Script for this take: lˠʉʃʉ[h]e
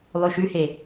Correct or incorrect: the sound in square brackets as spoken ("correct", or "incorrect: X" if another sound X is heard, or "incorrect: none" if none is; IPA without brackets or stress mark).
correct